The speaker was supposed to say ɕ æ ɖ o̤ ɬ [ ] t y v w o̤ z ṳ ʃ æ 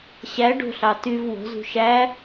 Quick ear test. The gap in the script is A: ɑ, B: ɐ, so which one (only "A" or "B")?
A